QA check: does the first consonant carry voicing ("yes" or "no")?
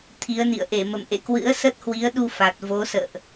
no